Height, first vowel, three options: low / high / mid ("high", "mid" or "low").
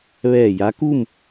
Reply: mid